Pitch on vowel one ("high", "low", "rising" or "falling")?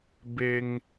low